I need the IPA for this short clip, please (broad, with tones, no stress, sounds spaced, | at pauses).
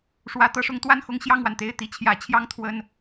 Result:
ʂ w ä˨˩ t̪ ɤ˥˩ ʂ ʊ˧˥ ŋ t̪ w a˥˩ n x ʊ˥ ŋ ɕ j ɑ˥˩ ŋ w a˩ n t̪ e˥˩ ɪ̯ t̪ i˧˥ t͡ɕʰ j ä˧˥ t͡ɕʰ j ɑ˥ ŋ t̪ʰ w ə˥ n